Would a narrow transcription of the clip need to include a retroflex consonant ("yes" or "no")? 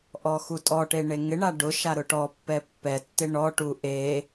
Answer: yes